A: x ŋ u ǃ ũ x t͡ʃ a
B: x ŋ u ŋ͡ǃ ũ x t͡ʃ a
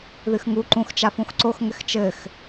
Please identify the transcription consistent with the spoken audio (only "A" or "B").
A